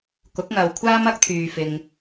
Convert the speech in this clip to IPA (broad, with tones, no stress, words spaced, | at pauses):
kʊ˨˥k̚ŋɐ˨wkʷʰaː˥m ɐ˥k̚t̪ʰyː˨ fɪ˨ŋ